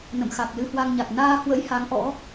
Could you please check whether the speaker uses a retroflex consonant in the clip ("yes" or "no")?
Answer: no